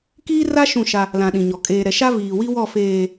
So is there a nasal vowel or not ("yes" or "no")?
yes